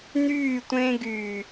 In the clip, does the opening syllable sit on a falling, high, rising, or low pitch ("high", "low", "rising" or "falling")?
falling